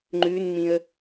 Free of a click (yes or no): no